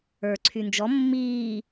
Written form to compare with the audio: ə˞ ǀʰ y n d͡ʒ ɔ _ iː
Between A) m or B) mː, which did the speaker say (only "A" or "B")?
B